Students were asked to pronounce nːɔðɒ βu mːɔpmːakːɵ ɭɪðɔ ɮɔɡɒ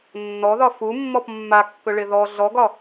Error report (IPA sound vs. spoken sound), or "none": β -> f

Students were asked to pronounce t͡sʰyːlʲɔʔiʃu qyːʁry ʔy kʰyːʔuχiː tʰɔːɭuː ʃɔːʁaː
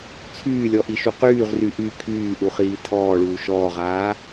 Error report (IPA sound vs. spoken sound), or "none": none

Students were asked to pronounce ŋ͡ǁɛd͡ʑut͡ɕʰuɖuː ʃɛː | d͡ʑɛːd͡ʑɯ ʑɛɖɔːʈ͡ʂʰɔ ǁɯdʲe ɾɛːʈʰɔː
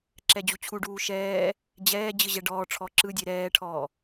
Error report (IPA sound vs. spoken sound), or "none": ŋ͡ǁ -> ǁ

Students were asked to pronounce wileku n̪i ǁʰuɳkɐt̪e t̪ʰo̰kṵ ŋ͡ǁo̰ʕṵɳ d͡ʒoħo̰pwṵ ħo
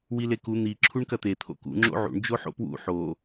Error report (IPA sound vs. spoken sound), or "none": none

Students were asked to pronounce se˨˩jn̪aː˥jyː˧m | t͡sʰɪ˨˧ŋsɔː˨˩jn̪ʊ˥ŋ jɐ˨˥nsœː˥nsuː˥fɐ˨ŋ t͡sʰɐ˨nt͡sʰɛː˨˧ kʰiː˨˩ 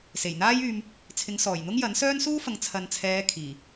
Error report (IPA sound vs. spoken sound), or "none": none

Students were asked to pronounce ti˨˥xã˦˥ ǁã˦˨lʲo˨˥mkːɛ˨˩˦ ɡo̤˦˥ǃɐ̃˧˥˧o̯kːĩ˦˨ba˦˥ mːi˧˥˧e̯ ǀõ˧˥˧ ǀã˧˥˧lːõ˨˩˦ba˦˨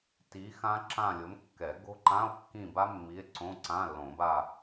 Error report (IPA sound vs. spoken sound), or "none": ɐ̃˧˥˧ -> ã˧˥˧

